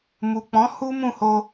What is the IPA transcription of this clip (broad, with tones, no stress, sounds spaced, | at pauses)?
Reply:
m u˨ k͡p ɔ̃˨˦ h u˦ m ũ˦˨ h o˧